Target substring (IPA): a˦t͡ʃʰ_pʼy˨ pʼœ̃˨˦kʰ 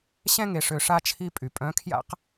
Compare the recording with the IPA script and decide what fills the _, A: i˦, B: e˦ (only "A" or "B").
A